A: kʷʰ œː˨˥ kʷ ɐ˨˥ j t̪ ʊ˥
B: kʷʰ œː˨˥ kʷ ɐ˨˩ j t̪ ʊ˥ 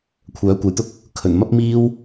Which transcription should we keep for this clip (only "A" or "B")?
A